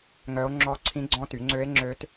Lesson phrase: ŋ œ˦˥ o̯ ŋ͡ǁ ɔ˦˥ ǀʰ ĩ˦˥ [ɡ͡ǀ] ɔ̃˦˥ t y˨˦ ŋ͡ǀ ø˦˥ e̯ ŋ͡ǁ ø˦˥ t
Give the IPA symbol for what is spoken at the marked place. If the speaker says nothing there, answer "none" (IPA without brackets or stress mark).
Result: ɡ͡ǀ